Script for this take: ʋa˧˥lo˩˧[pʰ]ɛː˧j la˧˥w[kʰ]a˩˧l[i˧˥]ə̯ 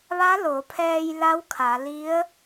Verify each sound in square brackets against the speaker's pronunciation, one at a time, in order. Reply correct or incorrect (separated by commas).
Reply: correct, correct, correct